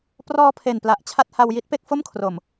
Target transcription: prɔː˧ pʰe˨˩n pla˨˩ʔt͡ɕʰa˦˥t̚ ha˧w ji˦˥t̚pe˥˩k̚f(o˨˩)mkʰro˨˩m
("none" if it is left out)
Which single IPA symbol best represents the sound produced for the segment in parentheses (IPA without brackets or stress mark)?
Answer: o˥˩